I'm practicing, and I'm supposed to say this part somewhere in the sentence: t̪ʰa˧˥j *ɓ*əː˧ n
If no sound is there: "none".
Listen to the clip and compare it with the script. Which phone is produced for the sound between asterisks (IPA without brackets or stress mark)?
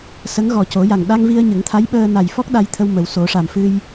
ɓ